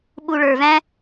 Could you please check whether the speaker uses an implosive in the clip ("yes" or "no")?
yes